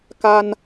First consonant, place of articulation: velar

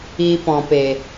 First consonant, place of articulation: labial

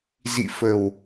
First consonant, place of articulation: alveolar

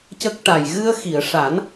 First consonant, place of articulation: palatal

